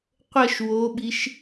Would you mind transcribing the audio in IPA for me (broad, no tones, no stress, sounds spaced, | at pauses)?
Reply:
qʷ ə ʃ w o ɓ i ʃ